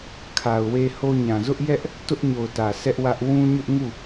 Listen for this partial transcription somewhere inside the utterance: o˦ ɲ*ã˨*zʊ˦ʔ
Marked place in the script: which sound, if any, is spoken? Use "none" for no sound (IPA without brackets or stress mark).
ã˨